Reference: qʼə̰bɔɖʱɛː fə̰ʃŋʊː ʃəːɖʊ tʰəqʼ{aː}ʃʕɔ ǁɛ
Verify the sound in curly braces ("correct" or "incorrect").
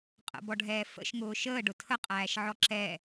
incorrect